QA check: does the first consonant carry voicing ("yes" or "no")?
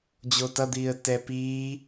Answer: yes